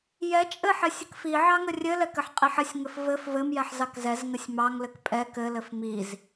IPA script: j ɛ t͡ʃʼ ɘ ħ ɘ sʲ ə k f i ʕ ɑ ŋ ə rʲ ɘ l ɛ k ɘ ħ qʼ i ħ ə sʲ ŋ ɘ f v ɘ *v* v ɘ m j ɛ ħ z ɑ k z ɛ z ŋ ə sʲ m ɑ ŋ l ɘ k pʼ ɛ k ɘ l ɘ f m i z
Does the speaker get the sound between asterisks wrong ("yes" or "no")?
yes